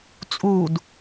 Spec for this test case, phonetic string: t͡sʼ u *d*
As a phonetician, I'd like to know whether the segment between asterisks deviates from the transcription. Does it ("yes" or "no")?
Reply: no